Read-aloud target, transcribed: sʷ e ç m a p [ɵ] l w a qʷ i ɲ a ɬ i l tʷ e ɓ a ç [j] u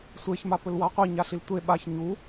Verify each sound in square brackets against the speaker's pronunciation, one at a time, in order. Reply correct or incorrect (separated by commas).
correct, incorrect